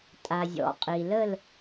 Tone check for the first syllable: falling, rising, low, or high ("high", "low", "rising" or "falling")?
low